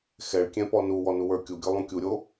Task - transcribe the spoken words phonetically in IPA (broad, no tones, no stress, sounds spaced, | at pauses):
x ɛ ɭ kʲ ɛ̃ p ɔ n u w ɔ n u w ə˞ kʲ u ɡʲ o lˠ ũ kʲ u ɾʲ o